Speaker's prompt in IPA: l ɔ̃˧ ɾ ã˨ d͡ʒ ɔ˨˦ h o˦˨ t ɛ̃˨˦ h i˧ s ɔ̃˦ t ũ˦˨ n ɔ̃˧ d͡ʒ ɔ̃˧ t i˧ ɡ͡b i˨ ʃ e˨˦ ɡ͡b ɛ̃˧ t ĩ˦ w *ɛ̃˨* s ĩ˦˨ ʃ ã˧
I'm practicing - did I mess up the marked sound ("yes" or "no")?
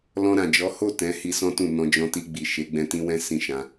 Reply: yes